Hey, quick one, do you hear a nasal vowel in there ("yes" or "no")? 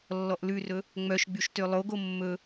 no